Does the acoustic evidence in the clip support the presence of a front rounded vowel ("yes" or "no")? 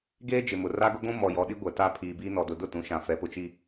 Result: no